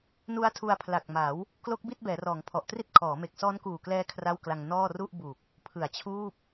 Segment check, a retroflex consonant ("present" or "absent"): absent